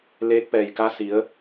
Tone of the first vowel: rising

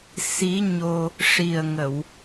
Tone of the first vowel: rising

